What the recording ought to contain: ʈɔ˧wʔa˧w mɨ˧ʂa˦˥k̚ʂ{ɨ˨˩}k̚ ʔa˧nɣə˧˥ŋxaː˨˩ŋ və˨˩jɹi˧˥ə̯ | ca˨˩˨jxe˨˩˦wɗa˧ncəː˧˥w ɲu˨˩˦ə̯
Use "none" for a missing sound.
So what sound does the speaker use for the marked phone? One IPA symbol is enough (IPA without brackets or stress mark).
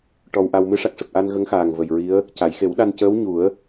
ə˨˩